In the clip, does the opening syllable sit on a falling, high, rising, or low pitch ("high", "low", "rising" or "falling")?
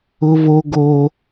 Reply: high